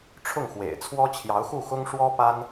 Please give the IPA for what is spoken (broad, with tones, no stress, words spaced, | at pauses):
ʈ͡ʂʰʊ˥˩ŋxwḛ˨˩ɪ̯t͡sʰwɔ˥ t͡ɕʰjɑ˧˥ʊ̯xu˥˩xʊ˥ŋ ʂwɔ˥pa˥n